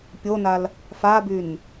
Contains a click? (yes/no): no